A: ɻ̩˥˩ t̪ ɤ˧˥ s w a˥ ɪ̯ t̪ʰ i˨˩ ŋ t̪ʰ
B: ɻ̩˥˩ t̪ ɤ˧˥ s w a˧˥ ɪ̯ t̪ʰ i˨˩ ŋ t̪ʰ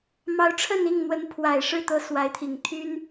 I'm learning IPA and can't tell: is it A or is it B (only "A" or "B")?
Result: B